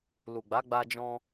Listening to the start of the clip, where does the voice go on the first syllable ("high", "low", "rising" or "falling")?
low